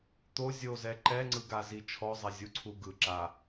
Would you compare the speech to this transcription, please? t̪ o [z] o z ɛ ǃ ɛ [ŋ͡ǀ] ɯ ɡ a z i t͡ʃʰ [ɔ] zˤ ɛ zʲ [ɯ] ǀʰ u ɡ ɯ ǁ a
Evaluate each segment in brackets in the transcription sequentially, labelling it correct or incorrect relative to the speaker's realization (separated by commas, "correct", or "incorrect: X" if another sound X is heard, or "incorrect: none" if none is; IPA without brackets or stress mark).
incorrect: zʲ, correct, correct, incorrect: u